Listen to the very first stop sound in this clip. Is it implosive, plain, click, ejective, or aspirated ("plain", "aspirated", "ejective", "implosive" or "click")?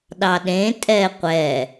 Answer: implosive